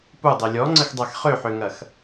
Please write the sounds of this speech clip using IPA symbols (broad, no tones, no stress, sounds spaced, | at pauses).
p u dˤ e lʲ ɔ ŋ͡ǀ ə x dˤ a x χ ø ħ ø ŋ ɐ x